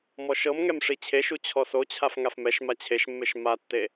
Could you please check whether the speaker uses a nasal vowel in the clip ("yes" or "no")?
no